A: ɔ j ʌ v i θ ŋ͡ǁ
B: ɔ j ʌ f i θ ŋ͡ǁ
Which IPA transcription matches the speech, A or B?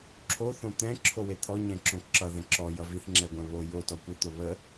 A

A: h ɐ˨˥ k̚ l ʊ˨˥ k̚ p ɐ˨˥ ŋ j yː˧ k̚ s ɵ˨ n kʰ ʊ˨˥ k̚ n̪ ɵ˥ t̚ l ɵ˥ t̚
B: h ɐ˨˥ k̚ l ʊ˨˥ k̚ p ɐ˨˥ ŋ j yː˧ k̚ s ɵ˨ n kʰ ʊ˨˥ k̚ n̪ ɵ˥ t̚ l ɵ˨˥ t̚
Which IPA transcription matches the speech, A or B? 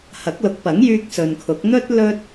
A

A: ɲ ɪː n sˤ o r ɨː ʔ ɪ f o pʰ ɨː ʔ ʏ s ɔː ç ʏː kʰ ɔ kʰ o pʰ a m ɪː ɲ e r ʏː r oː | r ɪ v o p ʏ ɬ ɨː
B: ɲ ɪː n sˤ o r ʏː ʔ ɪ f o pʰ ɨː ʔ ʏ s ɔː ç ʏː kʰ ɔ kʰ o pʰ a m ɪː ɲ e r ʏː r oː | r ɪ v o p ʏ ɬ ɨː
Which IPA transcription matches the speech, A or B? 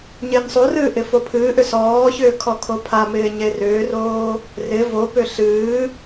A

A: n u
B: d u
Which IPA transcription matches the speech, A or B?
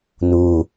A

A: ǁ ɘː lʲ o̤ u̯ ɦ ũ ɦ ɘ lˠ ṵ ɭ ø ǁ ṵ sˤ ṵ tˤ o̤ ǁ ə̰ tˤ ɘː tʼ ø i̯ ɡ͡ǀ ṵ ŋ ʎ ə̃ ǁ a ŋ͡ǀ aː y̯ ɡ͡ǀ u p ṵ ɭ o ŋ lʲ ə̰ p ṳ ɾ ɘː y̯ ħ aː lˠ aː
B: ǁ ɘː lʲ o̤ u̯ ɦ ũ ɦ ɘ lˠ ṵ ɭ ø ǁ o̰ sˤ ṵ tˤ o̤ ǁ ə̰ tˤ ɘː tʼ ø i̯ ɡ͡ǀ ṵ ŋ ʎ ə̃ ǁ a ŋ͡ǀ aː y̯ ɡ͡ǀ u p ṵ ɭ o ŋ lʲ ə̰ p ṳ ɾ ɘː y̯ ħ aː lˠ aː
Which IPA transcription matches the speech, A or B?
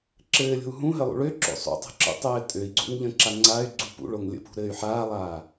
B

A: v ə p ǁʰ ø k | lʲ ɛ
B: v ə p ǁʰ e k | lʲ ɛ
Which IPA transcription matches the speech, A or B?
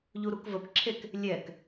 B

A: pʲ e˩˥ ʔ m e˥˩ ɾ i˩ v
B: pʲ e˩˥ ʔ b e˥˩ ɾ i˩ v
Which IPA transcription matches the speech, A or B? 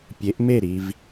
A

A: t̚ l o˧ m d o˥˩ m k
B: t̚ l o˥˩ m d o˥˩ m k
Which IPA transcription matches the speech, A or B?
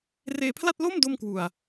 B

